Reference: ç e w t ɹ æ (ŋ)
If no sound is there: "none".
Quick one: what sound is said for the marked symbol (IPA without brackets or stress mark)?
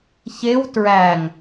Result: ŋ